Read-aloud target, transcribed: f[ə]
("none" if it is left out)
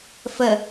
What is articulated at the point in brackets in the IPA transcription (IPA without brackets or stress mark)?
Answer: ə